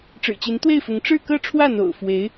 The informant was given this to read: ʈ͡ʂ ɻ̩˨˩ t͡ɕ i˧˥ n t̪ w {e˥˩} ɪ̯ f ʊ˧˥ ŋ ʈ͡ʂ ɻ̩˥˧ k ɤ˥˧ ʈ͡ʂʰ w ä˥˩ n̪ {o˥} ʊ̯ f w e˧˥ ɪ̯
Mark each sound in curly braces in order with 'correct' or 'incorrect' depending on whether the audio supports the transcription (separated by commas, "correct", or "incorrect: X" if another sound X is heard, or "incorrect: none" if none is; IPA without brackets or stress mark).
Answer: correct, incorrect: o̰˨˩